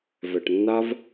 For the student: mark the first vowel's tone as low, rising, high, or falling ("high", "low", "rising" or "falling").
low